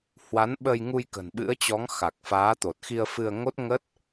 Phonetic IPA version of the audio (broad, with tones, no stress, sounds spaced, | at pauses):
h w a˨˦ n ɓ ə˧ j ŋ u˧ j k ə̤˨˩ n ɓ ɨ̰˧˥ ə̯ t͡ɕ ɔ˨˦ ŋ x a˨˩ k̚ f aː˨˦ t̪ o˨˩ t̚ x i˧ ə̯ f ɨ˧ ə̯ ŋ o˦˥ t̚ ŋ ə˦˥ t̚